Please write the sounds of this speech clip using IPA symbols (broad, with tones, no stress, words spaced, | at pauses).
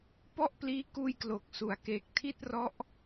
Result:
pɔ˥˩ʔpliː˦˥kuː˧j klo˨˩k̚su˩˦a̯ke˨˩k̚ tʰi˥˩t̚rɔ˦˥ʔ